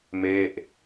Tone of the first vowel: falling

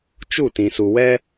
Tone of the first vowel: falling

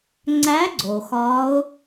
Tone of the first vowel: rising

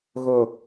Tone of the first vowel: low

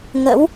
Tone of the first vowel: rising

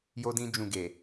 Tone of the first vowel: high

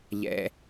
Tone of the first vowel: low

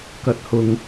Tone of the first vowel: high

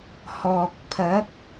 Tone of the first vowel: low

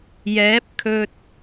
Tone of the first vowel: rising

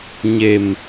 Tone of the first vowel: low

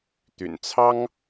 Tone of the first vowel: low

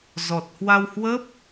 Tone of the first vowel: low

